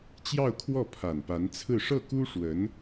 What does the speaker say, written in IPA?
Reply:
t͡ɕ j ɑ˥˧ ʊ̯ kʰ w ɔ˥˩ pʰ a˨˩ n p a˧˥ n t͡sʰ ɹ̩˥˧ ʂ ɤ˥˩ k u˥ ʂ w ə˧˥ n

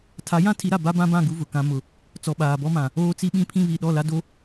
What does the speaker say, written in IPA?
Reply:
tʰ a˨˦ j ã˦ tʰ i˨˦ ɾ a˨ b a˦ b ã˦ b ã˦˨ ɡ u˦ v ʊ˨ k ã˦ m ʊ˨ | t͡s ɔ˨ ɓ aː˨ b ɔ˦ m ã˨ | oː˦ t͡s i˦ ɓ ĩ˦ pʰ ĩ˦ β i˨ ɗ ɔ˦˨ l a˦ d o˦

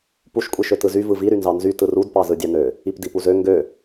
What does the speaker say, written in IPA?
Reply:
p u ʃ kʷʼ i ʃ ø t ɯ z y v ɯ v i ɾ y n z ɑ n z y t ɯ r u d p ɑ z ɯ dʲ ɑ n ø | i p d i p u z ø ŋ ɡ ø

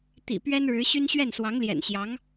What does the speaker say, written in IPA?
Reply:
t̪ ḭ˨˩ p ɥ ɛ˥ n ɻ ɻ̩˧˥ ɕ y˥ n ɕ ɥ ɛ˥˩ n s w ɑ˧˥ ŋ l j ɛ̰˨˩ n ɕ j ɑ˧˥ ŋ

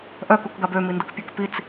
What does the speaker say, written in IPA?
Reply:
ʔ œ k u k ɡ a b ø m i n d ə k pʲ œ k p i t͡s

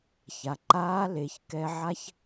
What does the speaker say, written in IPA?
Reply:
ç a˩ ǃ aː˧˥ l e˩˧ ç k ɛ˧ ʕ a˥ ç

